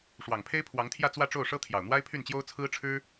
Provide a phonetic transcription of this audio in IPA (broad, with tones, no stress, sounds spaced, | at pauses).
ʂ w ɑ˨˩ ŋ pʰ e˥ ɪ̯ pʰ w ɑ˧˥ ŋ t̪ʰ j ä˥˧ t͡s w ä˥˧ ʈ͡ʂ o˥˩ ʊ̯ ʂ ɤ˥ t̪ʰ j ɑ˨˩ ʊ̯ n̪ w a˥ ɪ̯ pʰ y˥˩ n t͡ɕ j o˥ ʊ̯ t͡sʰ ɹ̩˥ ʈ͡ʂʰ ɻ̩˥